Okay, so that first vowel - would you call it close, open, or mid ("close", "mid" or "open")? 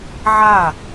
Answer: open